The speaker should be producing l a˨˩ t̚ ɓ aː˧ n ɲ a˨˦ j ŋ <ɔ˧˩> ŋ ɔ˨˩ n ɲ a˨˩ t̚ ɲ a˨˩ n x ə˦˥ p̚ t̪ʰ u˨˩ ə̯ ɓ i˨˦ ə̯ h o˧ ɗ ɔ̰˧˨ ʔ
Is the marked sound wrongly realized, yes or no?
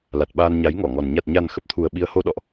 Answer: no